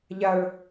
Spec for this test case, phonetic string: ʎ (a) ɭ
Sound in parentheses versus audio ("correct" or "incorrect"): correct